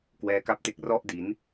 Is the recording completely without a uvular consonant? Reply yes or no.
yes